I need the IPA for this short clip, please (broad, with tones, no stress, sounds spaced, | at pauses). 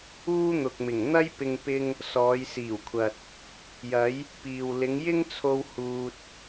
uː˥ n̪ ʊ˨ k̚ m ɪ˨˩ ŋ n̪ ɐ˥ j p ɪ˧ ŋ p ɪ˥ ŋ | s ɔː˨˧ j s iː˨˩ w kʷʰ ɐ˨ t̚ | j ɐ˨˧ j | p iː˨ w l ɪ˨˧ ŋ j ɪ˥ ŋ t͡sʰ o˧ w h uː˧ t̚